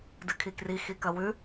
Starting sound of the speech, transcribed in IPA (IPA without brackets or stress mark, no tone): d